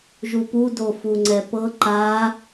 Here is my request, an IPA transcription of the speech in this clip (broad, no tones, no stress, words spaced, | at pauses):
ʒupu dofuŋ͡ǀɛpɤ ǃa